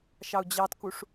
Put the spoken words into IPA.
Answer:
ʃɑu̯d͡ʑɑtkuʂ

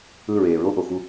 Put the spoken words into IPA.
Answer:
ɯ˦˨ɹeː˨ɹo˦ ʔo˨xu˦

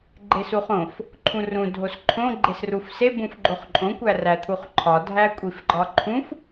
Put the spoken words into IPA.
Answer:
ɡ͡ǃesuχõf | ǃʰũrũ dʱosǃʰõ ɡ͡ǃesrufse bũfɡ͡ǃoχǃʼõ kʷæræt̪ʰuχǃʰɒ dʱækʷʼifɡ͡ǃɒǃʰũf

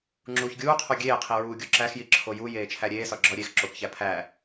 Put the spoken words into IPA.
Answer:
ŋ͡ǁuːçɡʲuːqʰo ɡʲeːqʰi ɹuːɡʲoǁæxji ǁʰojujeː t͡ʃʰæɾʲeːsɒ ɡ͡ǁɒɾʲeːx ǁokçæ pʰæ

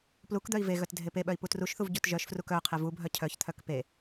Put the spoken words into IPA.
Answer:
plukd̪œi̯ ve ɣœtdʱepeɓœi̯ putruʃθuv ɟutʒœʃfruk œ qʰevubʱœ cʰœçt̪ʰœk pe

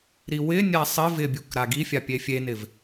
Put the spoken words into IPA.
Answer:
ɾiwɪnʲa sˤɪ vɪbʲuk ɾaɡifʲa pʲefʲenɪv

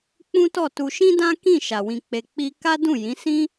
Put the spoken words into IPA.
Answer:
k͡pũ˦tɔ˦˨tu˧ ʃĩ˦dã˦kĩ˦˨ ʃa˧wĩ˦k͡pe˦ k͡pi˦ ka˦dũ˦˨jĩ˨˦ sĩ˦

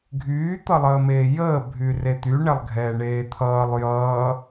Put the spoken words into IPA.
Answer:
ɡʱyːt̪ʌlˠəːmeː jəːbʱyre t̪yɳɛlˠɡʱɛːɳeː t̪ʰʌːlˠ jʌː

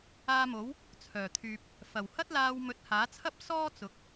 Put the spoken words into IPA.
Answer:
aː˧mo˨˥w | t͡sʰœː˨˩t̪ʰyː˨p̚ | fɐ˨˩whɐ˥t̚laː˧w mɵ˨˥t̚haː˨˥t͡sʰɐ˥p̚ sɔː˥t͡sʊ˨˥k̚

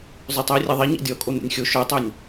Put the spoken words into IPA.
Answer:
zˤøtˤɛe̯rʲɛðˤi ɲɛ̰dʲɔ kʼon̪ɛ̰nʲxʲo ʃœtˤønʲ

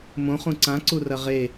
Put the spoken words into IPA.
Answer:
mõχũ ǀãǀurɐ ʁe

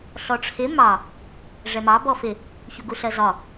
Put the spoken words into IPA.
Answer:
ɬɔʈ͡ʂʰɪ mɑ | ʐɛmɑ bɔfɪ | çuɡuɬɜzɒ

